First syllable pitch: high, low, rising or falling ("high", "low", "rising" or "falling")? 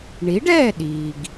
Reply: rising